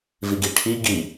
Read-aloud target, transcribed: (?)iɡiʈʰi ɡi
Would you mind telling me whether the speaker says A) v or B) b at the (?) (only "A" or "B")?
A